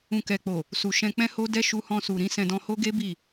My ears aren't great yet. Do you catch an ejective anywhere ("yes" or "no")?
no